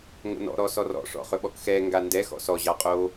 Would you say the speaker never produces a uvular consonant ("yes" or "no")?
no